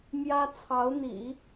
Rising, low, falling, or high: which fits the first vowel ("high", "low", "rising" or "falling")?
high